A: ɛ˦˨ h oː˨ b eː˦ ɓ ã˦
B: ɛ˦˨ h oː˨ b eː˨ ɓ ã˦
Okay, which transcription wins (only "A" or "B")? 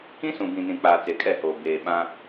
B